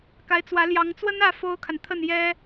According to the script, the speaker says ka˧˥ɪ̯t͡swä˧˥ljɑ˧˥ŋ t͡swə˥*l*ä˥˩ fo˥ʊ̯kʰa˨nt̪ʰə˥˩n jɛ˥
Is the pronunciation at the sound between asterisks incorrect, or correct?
incorrect